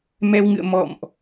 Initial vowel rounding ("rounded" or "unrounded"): unrounded